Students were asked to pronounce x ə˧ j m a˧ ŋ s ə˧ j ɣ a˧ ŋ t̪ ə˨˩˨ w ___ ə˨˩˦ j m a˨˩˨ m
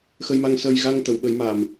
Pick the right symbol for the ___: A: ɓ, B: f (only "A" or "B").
A